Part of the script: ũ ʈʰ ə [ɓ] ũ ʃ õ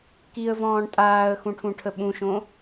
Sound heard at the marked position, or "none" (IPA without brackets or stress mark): ɓ